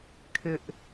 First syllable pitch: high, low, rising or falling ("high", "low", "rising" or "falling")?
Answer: high